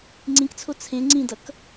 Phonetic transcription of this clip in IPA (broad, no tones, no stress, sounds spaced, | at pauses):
ŋ͡ǀ ĩ k t͡sʰ o t͡sʰ ẽ ŋ͡ǀ ĩ d ʌ k